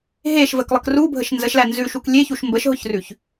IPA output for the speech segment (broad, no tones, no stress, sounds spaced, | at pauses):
ɦ e ʃ v ə k lˠ ə k r u bʱ ə ʃ n z ə ʃ l æ n z ʉ ʃ u k lʲ e ç u ʃ m b ə ʃ ɦ ʊ ç r ʉ ç